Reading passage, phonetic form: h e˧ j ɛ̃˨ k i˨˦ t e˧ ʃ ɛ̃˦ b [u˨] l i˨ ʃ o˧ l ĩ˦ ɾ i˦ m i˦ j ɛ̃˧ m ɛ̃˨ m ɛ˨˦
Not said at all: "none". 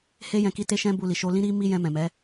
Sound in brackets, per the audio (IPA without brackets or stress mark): u˧